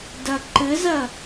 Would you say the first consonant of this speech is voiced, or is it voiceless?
voiced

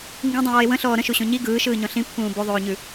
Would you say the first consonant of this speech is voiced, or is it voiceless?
voiced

